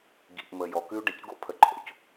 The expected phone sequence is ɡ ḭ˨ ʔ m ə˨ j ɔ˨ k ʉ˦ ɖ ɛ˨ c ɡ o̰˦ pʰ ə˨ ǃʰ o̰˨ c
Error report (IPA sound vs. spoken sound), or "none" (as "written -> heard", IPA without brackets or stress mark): none